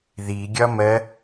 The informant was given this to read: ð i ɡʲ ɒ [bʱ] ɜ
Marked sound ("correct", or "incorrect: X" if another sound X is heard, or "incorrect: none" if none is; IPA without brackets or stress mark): incorrect: m